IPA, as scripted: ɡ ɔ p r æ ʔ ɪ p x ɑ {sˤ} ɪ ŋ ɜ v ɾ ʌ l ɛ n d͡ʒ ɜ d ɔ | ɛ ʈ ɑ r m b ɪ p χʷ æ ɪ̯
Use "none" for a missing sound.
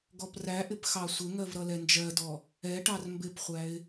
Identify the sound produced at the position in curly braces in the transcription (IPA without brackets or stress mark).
sʷ